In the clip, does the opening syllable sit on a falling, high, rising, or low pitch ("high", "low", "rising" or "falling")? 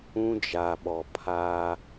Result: high